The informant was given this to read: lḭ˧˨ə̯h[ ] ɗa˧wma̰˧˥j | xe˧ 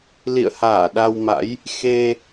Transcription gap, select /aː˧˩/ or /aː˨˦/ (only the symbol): aː˧˩